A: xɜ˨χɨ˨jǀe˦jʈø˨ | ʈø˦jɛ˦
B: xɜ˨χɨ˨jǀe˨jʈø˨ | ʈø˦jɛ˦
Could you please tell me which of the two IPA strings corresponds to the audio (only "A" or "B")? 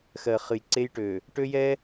A